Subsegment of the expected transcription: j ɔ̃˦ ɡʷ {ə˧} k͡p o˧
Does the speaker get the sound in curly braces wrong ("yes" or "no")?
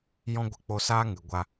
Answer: no